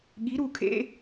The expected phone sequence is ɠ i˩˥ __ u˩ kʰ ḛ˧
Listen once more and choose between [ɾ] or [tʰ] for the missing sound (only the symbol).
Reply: ɾ